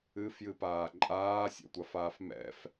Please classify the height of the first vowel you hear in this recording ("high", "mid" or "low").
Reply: high